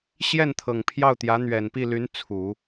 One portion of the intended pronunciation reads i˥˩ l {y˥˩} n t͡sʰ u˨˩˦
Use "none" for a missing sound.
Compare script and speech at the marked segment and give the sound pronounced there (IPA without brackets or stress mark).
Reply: y˧˥